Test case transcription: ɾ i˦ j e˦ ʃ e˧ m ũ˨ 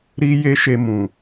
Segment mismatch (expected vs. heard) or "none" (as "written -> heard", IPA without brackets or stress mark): none